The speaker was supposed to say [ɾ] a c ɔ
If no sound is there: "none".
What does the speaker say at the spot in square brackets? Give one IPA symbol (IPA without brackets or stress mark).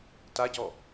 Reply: t